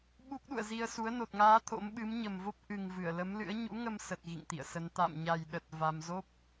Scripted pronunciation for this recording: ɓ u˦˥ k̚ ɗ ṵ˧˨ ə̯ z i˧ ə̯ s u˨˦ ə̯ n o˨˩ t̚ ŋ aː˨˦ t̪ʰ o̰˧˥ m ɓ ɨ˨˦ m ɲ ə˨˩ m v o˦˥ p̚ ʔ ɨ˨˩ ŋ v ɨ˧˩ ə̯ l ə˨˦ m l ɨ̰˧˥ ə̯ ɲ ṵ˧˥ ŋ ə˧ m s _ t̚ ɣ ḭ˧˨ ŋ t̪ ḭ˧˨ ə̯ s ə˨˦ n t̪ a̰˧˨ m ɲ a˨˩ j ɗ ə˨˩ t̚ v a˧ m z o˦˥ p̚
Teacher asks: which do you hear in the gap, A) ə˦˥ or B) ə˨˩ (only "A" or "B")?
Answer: B